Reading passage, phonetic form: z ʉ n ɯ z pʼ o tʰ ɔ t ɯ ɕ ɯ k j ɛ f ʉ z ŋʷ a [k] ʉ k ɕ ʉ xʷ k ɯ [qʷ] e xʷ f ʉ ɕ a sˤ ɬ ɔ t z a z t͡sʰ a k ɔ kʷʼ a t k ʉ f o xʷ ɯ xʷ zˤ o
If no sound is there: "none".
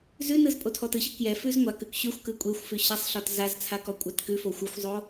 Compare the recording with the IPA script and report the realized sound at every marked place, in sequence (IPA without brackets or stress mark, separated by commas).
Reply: k, kʷʼ